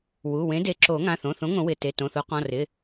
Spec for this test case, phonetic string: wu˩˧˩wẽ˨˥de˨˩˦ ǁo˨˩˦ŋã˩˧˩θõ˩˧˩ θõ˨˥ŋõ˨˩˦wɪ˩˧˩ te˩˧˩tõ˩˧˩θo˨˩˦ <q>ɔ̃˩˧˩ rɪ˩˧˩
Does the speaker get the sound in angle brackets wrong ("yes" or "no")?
no